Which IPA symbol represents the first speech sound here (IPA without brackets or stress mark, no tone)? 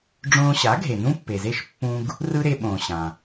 ɖ͡ʐ